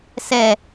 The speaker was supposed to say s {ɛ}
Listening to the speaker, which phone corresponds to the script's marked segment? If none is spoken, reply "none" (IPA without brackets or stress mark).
ɛ